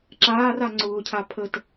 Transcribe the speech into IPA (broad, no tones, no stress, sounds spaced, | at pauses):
ǁ aː r a ŋ͡ǀ ʊː cʰ a pʰ ə t